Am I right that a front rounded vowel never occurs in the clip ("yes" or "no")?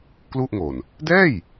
yes